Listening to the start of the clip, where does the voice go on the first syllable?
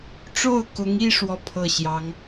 falling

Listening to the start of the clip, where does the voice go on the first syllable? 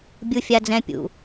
high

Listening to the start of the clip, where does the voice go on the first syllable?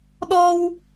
high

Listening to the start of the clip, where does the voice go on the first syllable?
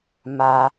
high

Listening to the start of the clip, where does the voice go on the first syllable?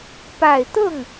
low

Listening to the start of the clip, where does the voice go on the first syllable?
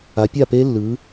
rising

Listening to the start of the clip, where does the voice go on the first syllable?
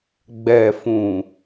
low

